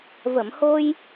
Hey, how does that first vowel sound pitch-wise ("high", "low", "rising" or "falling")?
low